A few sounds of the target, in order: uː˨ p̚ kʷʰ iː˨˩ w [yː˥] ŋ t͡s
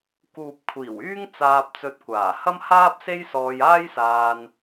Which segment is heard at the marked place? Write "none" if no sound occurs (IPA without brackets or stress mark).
yː˥